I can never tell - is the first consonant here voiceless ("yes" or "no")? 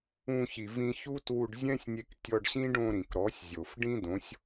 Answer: yes